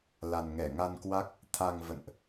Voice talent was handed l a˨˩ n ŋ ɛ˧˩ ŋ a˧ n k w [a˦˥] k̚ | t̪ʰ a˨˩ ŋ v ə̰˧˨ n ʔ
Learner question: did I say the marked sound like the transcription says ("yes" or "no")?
yes